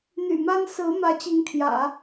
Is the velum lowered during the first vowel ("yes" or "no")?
no